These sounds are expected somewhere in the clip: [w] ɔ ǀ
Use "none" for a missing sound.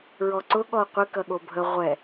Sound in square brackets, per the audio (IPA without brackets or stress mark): ɹ